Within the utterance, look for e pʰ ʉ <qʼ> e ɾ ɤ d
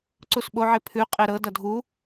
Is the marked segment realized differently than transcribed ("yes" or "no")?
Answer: no